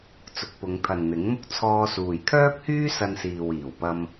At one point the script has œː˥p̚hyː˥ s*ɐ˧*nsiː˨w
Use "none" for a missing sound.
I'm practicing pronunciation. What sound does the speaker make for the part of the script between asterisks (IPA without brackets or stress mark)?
ɐ˧